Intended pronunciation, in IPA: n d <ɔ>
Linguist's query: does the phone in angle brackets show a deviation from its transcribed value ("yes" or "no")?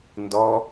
no